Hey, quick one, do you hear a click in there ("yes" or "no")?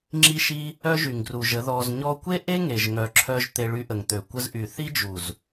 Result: yes